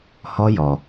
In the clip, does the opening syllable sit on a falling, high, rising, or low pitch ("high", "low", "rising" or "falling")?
high